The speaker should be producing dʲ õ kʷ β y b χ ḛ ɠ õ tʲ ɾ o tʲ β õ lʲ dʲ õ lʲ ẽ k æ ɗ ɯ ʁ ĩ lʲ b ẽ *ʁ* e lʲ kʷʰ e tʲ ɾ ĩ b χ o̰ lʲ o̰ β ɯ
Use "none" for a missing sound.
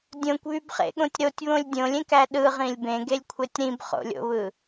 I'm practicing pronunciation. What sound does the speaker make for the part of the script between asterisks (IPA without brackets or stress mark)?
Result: ɡ